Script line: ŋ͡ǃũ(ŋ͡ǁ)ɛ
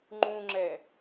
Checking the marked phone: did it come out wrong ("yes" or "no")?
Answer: no